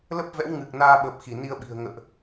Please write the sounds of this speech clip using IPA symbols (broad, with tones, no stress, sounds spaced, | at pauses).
l ə˦˥ p̚ v ɛ̰˧˥ w ŋ ɨ˨˩ k̚ n aː˧ ɓ əː˨˩ p̚ x i˧˩ n i˧ ə̯ ɓ i̤˨˩ ə̯ ŋ ə̰ː˧˨ ʔ